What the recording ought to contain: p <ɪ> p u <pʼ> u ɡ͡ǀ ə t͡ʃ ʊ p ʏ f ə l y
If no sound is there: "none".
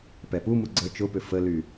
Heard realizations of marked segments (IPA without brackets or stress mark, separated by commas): ɛ, m